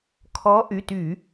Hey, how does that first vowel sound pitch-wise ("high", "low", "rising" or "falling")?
rising